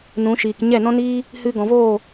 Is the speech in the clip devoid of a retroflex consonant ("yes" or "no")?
yes